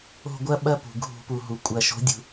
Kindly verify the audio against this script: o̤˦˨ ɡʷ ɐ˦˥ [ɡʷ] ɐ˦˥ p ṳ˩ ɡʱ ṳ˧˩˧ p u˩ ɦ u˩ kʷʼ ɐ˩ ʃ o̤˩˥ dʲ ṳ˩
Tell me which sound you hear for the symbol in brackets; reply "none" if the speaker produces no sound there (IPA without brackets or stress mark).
ɓ